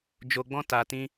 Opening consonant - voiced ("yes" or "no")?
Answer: yes